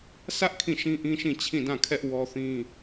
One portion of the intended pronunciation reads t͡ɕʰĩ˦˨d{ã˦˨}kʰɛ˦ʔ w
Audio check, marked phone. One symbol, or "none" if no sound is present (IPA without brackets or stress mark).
ã˦˨